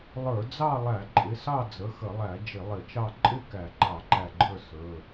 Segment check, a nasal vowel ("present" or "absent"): absent